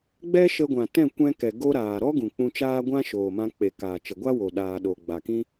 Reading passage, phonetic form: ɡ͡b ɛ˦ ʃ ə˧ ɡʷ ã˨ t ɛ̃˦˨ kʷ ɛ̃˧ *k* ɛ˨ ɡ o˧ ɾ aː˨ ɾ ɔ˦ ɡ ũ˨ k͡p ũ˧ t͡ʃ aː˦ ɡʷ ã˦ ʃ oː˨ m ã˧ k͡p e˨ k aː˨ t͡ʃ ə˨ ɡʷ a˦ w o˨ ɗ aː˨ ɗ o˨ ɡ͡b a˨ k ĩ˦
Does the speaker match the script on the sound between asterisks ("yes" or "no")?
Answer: yes